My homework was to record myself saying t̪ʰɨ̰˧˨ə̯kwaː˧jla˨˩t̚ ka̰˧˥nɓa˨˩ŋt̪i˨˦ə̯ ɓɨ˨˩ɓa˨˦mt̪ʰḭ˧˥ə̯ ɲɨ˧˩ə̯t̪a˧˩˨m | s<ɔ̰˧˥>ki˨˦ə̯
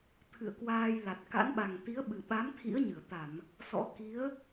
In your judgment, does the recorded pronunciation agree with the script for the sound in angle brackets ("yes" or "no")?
yes